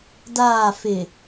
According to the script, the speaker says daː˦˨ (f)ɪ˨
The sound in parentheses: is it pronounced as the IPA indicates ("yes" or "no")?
yes